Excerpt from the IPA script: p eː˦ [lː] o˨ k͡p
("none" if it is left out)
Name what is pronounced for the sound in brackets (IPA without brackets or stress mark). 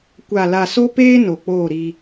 n